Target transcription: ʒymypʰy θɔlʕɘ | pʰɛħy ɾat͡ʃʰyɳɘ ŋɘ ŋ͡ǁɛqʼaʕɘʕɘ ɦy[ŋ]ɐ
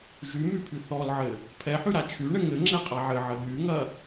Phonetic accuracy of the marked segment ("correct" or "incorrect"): correct